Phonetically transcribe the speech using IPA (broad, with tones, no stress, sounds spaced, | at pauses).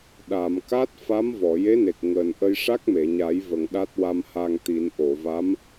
ɗ a˨˩˨ m k a˦˥ t̚ f a˧˥ m v ɔ˨˩˨ j e˧˥ n e˨˩ k̚ ŋ əː˨˩ n ʔ ə˧ j ʂ a˦˥ k̚ m e˨˩˨ ɲ a˨˩˦ j v ə˨˩˨ ŋ ɗ a˦˥ t̚ w a˧ m h a˧ ŋ t̪ i˨˩˦ n ʔ o˨˩˨ v a˧˥ m